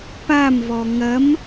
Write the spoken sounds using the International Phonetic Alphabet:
pamvɔ ŋɐm

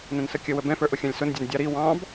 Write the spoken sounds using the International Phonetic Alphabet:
nə̃nsəkʲə wəbɛ̃fə˞ ʔʊxʲɑ̃lʲsʊndʲɛn dʲɑɾi wɑ̃b

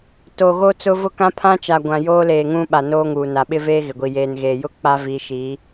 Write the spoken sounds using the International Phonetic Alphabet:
to˨ ɣo˦t͡sʊ˦vʊ˦ kã˦pʰã˦t͡ʃa˨ ɡʷã˨joː˦ leː˨ŋũ˦ɓa˨ noː˦ŋuː˨na˨ ɓɪ˦veː˦ ɣɪ˨ɡʷi˨ jeː˨nɣeː˨jʊ˦ k͡pa˦vi˨˦ʃi˨˦

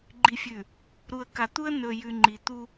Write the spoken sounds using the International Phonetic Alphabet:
ɡ͡ǃi˨fʲʉ˨ | ɾu˨ə̯ka˨t̪u˦ə̯ nɵ˨jʉ˨ ŋ͡ǃi˨ t̪u˦

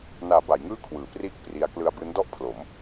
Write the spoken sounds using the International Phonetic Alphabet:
naː˩˦ ba˩˦j ŋɯː˥˩kʰwɯː˩˦priː˥˩k̚ pri˦˥a̯ klɯ˧a̯ bɯː˦˥n dɔ˦˥ʔ pʰlo˩˦m

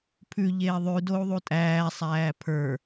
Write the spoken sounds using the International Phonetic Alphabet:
pʰʉʎeː ðˤʉ dou̯ðˤutʼæːsˤæː pʰə˞

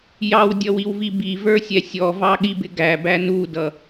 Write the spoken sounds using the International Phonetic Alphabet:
jɑwdʲʌwiwvi bivə˞sʲɛ sʲɔvɑɠibɪ ɡæbæ nudʌ

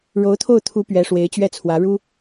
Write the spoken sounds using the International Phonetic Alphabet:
ɻo˧˥ʊ̯t̪ʰo˥˩ʊ̯t̪ʰu˧˥ pɥɛ˧˥ʂwe˧˥ɪ̯t͡ɕɥɛ˥˩t͡sʰwä˧˥ ɻu˥

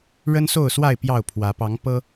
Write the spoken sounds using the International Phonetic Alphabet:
ɻə˦nso˥˨ʊ̯swa˥˨ɪ̯ pjɑ˥˨ʊ̯pʰwä˨˦ pɑ˨˦ŋpɤ˦

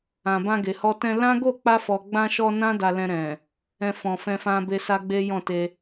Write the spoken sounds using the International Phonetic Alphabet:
ã˨bã˧ɡe˨hɔ˧ tɛ̃˧ lã˦ɡo˦˨ k͡pa˧fɔ˨ɡ͡bã˧ʃɔ˧ nã˦da˧lɛ̃˧ ɾɛ̃˨ | ɛ̃˨ fɔ̃˨fɛ̃˧fã˧ be˧sa˦ɡ͡be˦ jɔ̃˦˨te˧

